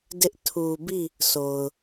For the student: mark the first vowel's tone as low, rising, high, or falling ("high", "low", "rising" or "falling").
high